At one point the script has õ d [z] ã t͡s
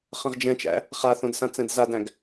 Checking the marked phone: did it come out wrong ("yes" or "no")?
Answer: yes